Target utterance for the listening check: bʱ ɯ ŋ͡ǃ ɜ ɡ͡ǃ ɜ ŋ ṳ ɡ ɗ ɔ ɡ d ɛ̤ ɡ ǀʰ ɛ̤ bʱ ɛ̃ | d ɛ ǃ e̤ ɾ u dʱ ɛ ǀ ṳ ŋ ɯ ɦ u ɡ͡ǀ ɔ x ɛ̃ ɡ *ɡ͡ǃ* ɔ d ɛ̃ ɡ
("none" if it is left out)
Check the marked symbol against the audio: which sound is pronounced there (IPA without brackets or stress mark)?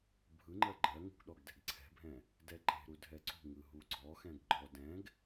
ɡ͡ǃ